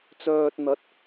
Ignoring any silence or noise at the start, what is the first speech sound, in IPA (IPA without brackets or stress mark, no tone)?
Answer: t͡s